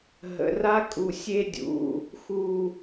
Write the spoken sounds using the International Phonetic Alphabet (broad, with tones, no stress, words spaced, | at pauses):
ɦə̰˩˧˩ra˥kʼu˩˧˩ sʲe˥dʲṵ˩˧˩ | xu˦˨